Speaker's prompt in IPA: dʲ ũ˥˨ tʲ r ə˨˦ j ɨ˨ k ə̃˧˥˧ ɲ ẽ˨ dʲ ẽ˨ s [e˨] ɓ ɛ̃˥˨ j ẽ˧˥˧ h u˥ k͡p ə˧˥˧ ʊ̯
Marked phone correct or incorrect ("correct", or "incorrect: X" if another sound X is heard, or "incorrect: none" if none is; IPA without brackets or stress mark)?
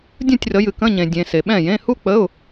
correct